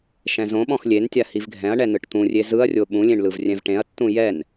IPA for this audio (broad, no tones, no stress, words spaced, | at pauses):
ʃɛ̃zõɓɔ̃x lʲentʲa hivɡʱɛ̃ɐ̯ɳɛ nɯʈt̪ũrʲe zɯɐ̯rʲo ɓũlʲẽɳ lɯvrʲɛ̃vʈẽɐ̯tːũ jɛn